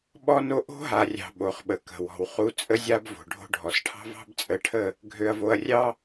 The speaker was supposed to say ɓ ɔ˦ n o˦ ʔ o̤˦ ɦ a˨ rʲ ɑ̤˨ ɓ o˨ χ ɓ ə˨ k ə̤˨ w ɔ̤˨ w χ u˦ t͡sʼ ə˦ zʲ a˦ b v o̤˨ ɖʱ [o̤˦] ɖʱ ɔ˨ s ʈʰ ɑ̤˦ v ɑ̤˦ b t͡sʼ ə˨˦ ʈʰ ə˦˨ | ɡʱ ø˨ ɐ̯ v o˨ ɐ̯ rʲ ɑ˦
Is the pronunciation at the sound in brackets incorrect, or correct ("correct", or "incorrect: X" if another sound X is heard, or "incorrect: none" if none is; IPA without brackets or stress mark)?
correct